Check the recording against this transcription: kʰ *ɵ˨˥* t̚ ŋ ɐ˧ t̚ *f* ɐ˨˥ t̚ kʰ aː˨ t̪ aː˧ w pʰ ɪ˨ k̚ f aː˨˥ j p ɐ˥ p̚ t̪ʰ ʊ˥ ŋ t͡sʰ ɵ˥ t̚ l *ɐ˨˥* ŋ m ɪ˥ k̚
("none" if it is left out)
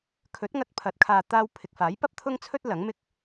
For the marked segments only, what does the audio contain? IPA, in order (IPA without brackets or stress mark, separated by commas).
ɵ˨˥, pʰ, ɐ˨˥